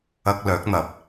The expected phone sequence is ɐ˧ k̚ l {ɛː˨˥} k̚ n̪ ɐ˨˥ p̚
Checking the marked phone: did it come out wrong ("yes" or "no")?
yes